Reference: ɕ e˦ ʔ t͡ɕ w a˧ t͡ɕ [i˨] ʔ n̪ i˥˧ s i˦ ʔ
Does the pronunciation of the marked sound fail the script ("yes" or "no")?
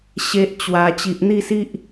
no